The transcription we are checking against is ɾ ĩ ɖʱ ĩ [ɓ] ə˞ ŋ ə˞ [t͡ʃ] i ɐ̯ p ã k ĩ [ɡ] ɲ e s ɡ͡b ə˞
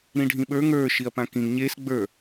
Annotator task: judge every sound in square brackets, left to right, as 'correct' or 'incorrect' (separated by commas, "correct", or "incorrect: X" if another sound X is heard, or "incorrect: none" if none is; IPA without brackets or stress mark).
correct, incorrect: ʃ, incorrect: ŋ